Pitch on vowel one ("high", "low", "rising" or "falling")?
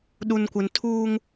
low